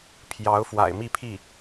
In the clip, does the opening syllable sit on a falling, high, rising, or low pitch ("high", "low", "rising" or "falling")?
rising